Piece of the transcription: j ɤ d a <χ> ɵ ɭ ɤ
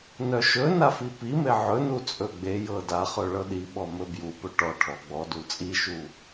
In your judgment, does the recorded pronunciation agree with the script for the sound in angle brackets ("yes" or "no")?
yes